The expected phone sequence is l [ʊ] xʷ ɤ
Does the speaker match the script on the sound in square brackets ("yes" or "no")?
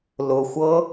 yes